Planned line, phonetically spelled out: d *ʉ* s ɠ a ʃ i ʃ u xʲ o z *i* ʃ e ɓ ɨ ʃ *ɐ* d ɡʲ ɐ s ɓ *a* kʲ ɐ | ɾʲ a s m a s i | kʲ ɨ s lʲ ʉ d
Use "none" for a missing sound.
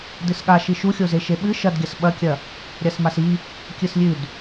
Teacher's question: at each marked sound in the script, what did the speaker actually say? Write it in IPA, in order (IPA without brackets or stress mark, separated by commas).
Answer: ɨ, e, ɐ, ɐ